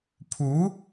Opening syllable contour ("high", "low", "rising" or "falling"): rising